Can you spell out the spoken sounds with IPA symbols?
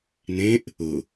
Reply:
n ẽ ʔ | ʊ

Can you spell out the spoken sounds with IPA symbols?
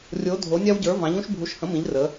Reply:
rʲ o˨˦ dʱ o˨˦ nʲ ɑ˦ w ɟ ə˞˨˦ v ɑ̃˨˦ ʎ ũ˦ ʃ bʱ u˨˦ ʃ h ə̃˨˦ m ĩ˨˦ ʎ r ə˨˦

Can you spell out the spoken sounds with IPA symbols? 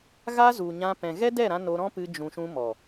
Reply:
ɣ a˦ z u˨ ɲ ã˧ p ɛ̃˨ ɣ ɛ˦ d ɛ˦˨ ɾ ã˧ n o˧ ɾ ɔ̃˦ p ɨ˧ d͡ʒ ũ˨ ʃ ũ˧ m ɔ˨

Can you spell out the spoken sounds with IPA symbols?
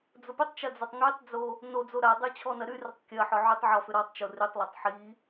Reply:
d͡z ʊ p ʏ tˤ t͡ʃ ɐ d͡z ɐ tˤ ŋ y tˤ d͡z o | n o d͡z o ɾ a dˤ y t͡ɕʰ ɔ n ɐ ɾ y r ʏ tˤ kʲ ɐ ħ ɔ ʕ y tˤ ʕ ɔ f ʏ ɾ ɔ tˤ t͡ʃ o r y tˤ lˠ e tˤ ħ i

